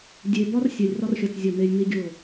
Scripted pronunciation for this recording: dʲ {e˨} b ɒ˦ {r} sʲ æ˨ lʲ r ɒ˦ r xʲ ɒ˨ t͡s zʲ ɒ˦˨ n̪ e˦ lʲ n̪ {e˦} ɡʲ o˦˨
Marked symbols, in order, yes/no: yes, yes, no

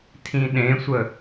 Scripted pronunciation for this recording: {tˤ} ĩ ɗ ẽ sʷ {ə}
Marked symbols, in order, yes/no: no, yes

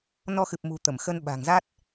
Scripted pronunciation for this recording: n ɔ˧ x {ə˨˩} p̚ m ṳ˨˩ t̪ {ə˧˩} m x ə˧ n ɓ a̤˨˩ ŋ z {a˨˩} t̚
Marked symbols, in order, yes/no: no, yes, no

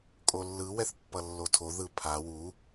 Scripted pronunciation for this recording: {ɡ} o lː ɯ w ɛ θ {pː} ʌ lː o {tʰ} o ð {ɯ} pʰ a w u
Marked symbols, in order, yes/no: no, yes, yes, yes

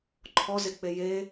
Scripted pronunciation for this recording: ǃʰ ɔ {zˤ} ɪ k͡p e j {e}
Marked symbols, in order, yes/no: no, yes

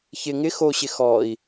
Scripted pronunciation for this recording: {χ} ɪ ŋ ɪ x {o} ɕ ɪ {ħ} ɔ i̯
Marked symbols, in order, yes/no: no, yes, no

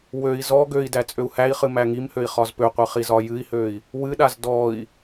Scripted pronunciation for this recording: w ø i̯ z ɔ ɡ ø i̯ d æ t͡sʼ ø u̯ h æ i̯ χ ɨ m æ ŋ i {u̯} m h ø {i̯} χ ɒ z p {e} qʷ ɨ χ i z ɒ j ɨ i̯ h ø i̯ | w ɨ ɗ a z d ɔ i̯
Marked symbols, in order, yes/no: no, yes, no

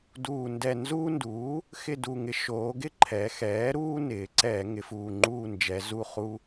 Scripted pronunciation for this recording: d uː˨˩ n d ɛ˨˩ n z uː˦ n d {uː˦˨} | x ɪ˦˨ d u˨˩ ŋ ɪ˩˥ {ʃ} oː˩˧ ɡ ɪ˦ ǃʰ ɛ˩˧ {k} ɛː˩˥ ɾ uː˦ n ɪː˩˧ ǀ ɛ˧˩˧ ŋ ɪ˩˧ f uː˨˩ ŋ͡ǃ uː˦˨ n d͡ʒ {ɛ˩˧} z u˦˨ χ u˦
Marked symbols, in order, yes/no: no, yes, no, yes

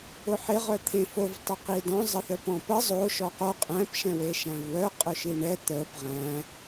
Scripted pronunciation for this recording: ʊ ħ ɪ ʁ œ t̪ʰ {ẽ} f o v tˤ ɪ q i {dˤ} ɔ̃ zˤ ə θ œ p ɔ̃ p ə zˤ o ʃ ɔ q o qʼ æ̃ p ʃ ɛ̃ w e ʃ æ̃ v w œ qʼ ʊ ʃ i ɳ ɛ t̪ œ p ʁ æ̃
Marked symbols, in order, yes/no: yes, no

